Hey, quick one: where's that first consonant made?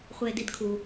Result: uvula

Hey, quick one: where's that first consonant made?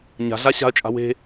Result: palate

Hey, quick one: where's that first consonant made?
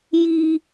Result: palate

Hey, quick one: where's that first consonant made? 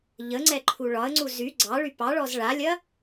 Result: palate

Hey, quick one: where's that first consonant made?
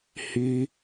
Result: throat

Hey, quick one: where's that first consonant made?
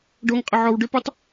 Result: retroflex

